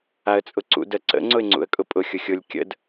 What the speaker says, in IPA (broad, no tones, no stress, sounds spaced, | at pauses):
a ə̯ t͡sʼ ʊ ǀ ṵ d ə ǀ ə̰ ŋ͡ǀ ʊ ɪ̯ ŋ͡ǀ ṵ ə̯ kʼ ʊ pʼ ʊ xʲ ʊ xʲ ʊ lʲ kʲ ə̰ d